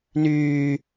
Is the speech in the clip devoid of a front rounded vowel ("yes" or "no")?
no